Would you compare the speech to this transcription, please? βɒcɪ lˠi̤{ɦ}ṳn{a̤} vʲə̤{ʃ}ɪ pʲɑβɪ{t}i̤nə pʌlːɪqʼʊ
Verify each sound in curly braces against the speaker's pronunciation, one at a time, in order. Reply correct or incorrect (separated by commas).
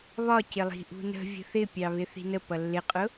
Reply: incorrect, incorrect, incorrect, incorrect